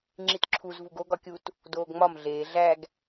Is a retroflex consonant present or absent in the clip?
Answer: absent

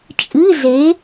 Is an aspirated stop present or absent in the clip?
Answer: absent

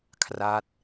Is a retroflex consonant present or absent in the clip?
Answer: absent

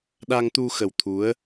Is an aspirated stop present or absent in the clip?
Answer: present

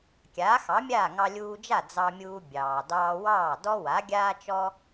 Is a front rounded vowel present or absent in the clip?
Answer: absent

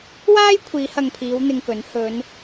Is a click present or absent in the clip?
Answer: absent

